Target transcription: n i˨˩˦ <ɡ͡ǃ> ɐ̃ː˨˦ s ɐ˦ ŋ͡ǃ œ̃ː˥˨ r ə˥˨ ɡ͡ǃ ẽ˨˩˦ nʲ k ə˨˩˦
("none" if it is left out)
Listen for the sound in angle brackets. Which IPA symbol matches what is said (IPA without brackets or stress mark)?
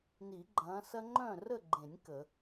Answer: ɡ͡ǃ